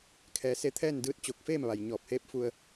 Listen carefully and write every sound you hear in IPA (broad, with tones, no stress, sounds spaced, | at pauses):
kʰ ɛː˩˧ s e˧ t̪ʰ ɛː˥˨ n d ɯː˧˥ t̚ t͡ɕ o˧˩ k̚ f eː˥˨ m ʋ a˩ j ɲ ɔː˧˩ p̚ h eː˧˥ p̚ f u˧ ə̯